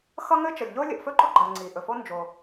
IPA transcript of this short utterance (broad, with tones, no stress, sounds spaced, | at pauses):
x ʌ˥ ŋ ɘ˥ t͡ʃ ʌ˩ lʲ ʎ o˥ lʲ ʌ˩ ʔ f ɵ˥ ɡ͡ǃ ɔ˥ ɡ͡ǃ ɜ˩ ŋ͡ǀ i˩ ʔ ɵ˩ f o˥ n d͡ʒ o˩